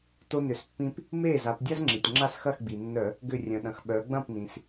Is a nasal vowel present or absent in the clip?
present